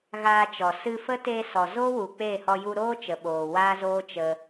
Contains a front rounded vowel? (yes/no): no